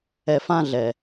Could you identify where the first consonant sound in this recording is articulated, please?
labial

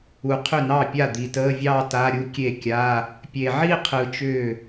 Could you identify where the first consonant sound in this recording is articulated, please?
uvular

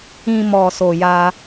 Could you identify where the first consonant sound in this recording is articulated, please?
labial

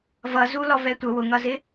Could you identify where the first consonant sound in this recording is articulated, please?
labial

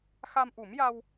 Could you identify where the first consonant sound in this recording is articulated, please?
velar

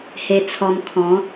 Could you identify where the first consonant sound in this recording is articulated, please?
glottal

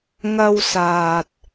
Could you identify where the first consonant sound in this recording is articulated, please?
velar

